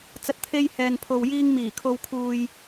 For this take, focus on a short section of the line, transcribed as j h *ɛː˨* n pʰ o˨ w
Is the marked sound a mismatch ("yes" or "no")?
no